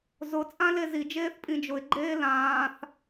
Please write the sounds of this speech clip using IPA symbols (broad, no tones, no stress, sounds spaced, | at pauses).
z ʊ t͡sʼ ã l e z i d͡ʒ eː θ pʼ ĩ d͡ʒ ʊ ɪ̯ ɡ͡ǃ eː l ãː θ